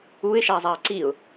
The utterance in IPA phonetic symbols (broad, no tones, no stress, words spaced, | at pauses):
uɪ̯ʃazˤaə̯ ǀiʊ̯